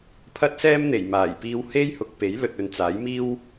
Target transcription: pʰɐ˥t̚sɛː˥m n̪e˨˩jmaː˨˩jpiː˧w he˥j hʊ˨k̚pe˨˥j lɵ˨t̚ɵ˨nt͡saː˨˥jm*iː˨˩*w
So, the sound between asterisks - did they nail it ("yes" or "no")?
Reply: no